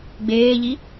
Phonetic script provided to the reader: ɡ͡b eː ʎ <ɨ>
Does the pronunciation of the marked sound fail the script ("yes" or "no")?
yes